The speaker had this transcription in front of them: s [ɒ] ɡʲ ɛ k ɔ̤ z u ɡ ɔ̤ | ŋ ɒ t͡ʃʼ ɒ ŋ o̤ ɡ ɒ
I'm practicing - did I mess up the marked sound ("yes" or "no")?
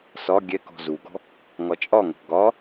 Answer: no